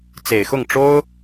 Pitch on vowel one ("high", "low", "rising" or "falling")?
low